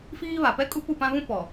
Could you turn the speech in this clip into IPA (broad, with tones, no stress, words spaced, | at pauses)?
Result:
fiː˦βa˨ pɛ˦kʼu˦pu˦˨pã˦ βũ˦ pɔ˨